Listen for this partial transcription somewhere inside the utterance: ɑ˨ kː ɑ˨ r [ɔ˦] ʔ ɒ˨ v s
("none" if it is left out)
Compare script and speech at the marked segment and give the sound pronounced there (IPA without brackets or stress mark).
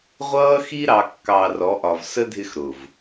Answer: ɔ˨˦